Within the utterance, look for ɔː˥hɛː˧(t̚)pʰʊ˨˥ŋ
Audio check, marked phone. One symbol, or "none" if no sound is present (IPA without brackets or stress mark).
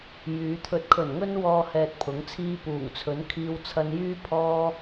t̚